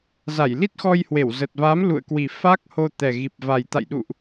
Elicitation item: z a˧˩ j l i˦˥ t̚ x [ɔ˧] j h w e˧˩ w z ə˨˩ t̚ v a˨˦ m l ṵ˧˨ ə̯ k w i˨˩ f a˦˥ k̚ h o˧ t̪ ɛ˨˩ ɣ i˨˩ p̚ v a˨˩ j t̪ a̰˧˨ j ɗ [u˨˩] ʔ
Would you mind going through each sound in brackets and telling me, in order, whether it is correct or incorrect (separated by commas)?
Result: correct, incorrect